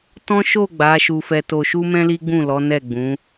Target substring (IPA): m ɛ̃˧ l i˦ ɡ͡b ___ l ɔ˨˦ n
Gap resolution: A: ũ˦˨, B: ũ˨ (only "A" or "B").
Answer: A